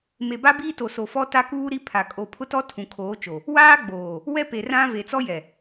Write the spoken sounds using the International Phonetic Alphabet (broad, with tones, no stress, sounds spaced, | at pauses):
m e˨ b a˦ b iː˦ t o˨ s o˨ f ɔ˦ t a˦ k uː˦ ɾ i˦ pʰ a˨ kʼ o˨ pʰ ʊ˦ t ɔ˦ tʰ ũ˨ kʰ oː˨˦ t͡ʃ o˨ | w aː˦ ɡ͡b oː˨ | w ɛ˦ p e˨ r ã˦ v e˨ t͡s ɔ˦ j ɛ˨